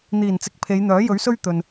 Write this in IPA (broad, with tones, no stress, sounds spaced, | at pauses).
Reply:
n̪ iː˨˩ n t͡s ɪ˨˥ k̚ pʰ e˨˧ j n̪ œː˨˥ j ɵ˨˥ ɥ s ɵ˥ ɥ t̪ ɵ˨ n